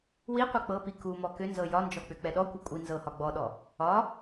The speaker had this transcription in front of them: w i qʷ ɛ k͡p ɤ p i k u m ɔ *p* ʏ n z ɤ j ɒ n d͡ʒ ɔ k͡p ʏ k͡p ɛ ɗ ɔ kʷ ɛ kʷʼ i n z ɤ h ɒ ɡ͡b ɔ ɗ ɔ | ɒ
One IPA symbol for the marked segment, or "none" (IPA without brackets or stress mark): k